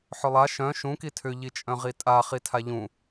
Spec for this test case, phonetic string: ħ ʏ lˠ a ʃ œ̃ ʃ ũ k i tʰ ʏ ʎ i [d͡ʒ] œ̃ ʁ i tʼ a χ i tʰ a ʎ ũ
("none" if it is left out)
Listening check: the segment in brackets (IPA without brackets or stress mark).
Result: t͡ʃʼ